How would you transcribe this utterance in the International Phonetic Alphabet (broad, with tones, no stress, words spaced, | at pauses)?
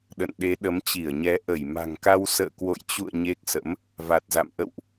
ɗə̰˧˨nɗe˨˦ ɗə˨˦mt͡ɕi˧˩ə̯ɲɛ˨˦ ʔə˧˩jma̤˨˩ŋka˧w sə̰ː˧˨kwo̰˧˨jt͡ɕṵ˧˨ə̯ ɲe˦˥k̚sə̰˧˥m | va˨˩t̚za̰˧˨m ʔə̰˧˨wʔ